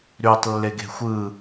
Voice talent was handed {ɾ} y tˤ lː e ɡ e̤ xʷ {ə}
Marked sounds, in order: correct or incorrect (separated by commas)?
correct, incorrect